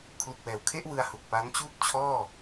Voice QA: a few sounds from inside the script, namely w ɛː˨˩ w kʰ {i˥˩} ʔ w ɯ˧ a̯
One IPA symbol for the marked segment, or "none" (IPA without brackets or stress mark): e˥˩